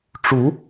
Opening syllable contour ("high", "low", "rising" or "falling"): rising